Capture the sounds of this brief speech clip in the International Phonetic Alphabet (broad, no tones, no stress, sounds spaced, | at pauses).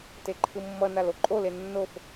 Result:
t e ǃʰ ɯ mː ʌ n a l o ǃʼ o l e nː o f